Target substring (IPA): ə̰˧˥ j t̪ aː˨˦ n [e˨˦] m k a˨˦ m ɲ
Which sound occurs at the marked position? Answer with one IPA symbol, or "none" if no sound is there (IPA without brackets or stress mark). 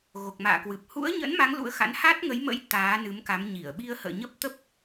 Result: ɨ˨˦